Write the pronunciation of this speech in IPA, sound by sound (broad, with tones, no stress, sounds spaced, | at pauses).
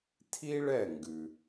tʰ i˥ ɭ ɛ˥˩ ŋ ɡ ʉ˩